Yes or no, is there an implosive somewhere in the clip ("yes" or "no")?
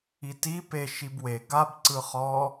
no